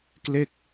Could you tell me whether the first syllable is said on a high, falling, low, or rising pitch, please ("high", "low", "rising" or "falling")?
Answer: falling